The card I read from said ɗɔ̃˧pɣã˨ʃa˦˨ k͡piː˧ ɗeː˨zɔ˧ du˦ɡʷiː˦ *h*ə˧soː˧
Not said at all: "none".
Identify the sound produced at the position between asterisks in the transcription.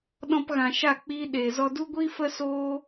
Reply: f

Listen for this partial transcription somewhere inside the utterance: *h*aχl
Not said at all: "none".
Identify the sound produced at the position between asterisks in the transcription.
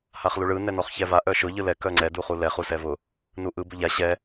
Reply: h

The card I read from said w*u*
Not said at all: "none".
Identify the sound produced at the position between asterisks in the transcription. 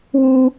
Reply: u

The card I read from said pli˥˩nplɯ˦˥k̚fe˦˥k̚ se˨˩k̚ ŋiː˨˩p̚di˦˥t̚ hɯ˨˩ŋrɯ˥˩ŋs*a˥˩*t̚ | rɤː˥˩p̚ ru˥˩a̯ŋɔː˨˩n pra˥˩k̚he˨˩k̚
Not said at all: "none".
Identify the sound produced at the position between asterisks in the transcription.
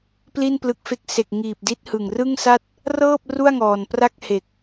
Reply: a˥˩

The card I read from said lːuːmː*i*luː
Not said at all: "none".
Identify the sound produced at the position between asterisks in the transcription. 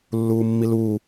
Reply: i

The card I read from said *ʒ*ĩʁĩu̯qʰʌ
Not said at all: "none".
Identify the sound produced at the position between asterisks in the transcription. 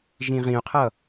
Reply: ʒ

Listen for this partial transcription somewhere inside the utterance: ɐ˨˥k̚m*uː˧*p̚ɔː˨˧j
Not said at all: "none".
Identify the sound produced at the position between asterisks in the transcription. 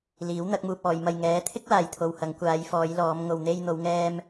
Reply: uː˧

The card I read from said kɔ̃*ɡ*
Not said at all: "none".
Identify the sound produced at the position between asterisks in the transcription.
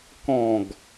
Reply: ɡ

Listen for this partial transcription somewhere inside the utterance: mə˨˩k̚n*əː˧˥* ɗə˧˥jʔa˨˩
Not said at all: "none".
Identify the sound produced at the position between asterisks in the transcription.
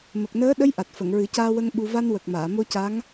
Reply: əː˧˥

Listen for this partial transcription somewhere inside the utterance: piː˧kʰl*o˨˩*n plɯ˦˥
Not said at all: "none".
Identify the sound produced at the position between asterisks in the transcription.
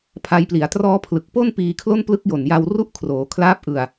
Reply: o˥˩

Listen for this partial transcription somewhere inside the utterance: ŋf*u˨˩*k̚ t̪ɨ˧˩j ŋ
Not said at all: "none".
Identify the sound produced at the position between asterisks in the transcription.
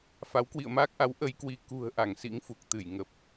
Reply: u˨˩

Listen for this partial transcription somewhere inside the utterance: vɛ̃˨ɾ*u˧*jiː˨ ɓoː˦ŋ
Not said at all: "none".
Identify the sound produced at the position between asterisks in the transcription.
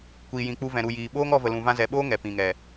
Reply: u˨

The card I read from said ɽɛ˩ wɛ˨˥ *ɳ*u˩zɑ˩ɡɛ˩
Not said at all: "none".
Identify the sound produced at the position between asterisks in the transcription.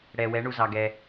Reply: ɳ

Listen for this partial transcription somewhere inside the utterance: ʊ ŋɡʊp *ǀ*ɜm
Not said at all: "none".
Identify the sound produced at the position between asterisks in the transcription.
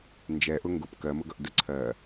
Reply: k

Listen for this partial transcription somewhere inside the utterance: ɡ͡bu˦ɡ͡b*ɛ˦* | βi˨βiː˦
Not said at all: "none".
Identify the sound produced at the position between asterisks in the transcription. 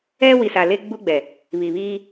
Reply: ɛ˨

